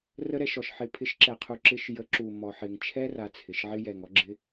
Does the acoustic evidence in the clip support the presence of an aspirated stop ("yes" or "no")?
yes